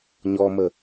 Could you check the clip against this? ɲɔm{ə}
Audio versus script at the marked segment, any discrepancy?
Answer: no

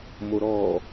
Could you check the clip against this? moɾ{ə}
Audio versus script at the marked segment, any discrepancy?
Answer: yes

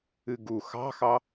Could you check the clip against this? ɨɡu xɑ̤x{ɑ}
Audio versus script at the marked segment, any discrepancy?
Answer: no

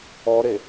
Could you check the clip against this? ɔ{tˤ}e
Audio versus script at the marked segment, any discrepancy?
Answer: yes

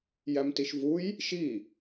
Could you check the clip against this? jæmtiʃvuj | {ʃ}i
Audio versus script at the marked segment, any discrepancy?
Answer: no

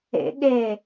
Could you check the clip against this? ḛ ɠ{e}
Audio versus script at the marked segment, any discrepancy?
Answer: no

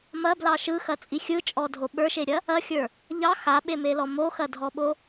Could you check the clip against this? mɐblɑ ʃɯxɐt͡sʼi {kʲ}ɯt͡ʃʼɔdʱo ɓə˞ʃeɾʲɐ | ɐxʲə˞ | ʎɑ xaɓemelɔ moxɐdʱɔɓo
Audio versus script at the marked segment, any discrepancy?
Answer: yes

